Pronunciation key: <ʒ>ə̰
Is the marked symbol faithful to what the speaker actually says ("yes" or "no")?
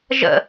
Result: yes